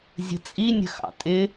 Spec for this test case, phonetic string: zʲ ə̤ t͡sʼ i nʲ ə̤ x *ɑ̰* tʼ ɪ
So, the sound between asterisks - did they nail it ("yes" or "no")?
yes